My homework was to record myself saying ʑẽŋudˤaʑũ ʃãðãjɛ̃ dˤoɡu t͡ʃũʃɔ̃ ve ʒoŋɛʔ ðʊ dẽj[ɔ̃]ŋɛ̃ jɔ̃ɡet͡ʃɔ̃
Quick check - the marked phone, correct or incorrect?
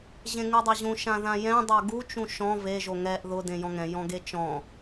correct